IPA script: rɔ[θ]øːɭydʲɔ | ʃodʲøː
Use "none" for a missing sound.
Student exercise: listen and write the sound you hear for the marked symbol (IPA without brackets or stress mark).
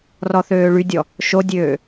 θ